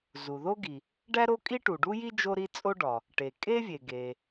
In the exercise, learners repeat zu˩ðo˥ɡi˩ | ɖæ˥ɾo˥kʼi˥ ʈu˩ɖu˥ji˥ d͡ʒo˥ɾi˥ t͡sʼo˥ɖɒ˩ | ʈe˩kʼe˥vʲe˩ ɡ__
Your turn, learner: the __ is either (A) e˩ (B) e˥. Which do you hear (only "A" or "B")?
A